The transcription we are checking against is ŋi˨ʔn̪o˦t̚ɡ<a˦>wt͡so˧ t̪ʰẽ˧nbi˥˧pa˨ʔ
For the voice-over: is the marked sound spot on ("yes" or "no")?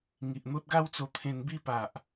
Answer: yes